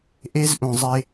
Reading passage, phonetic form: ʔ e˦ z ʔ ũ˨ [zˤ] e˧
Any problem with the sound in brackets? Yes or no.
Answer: no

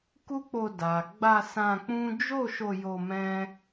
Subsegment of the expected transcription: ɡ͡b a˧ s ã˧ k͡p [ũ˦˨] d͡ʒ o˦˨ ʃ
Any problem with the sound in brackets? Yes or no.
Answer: yes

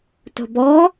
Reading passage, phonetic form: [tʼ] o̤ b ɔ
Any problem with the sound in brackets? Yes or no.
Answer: yes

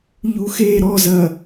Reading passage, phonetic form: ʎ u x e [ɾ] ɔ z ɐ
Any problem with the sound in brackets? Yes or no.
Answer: no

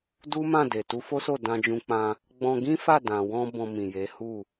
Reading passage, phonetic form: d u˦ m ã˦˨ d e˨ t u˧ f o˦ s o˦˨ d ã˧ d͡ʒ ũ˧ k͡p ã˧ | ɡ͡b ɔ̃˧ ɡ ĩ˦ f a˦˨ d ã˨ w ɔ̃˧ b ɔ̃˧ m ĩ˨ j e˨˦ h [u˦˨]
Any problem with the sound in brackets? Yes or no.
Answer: no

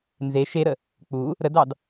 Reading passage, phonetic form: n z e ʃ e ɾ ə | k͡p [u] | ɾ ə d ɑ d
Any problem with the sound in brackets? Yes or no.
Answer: no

